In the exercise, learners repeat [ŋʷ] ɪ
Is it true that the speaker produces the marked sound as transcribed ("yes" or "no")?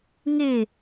no